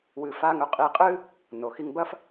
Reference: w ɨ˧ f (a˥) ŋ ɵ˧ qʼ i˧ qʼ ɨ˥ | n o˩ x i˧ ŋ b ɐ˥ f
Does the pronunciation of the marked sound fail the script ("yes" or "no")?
no